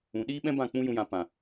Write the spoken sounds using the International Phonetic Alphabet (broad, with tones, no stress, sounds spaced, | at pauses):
ũ˨ ɗ iː˦ ɓ ɛ̃˦ b ã˦˨ k͡p ũ˦ j ũ˦ j ã˧ p ã˨